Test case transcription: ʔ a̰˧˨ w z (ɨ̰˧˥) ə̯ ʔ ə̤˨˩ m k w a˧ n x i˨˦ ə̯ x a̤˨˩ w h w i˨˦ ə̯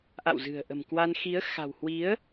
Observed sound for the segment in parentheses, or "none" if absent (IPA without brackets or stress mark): ɨ̤˨˩